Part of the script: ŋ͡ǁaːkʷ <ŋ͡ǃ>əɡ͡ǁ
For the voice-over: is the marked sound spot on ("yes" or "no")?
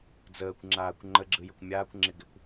yes